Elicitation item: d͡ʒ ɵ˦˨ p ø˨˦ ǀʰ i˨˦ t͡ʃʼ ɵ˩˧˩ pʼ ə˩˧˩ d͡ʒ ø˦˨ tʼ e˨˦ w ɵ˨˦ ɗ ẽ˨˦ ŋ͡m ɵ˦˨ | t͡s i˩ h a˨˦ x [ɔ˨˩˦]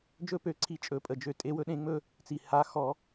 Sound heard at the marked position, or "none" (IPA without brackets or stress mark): ɔ˨˩˦